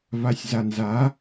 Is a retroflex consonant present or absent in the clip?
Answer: absent